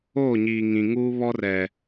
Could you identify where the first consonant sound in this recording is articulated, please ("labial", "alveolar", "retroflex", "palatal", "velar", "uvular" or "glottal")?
palatal